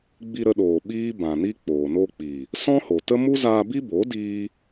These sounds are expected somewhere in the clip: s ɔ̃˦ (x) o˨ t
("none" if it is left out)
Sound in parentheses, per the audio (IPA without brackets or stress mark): h